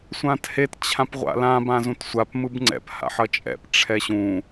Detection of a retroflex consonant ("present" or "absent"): present